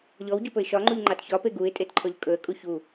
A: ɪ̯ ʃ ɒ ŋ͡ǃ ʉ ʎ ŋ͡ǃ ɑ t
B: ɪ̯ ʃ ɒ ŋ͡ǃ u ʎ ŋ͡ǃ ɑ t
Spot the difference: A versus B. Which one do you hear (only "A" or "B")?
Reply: B